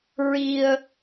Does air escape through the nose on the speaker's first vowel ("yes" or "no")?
no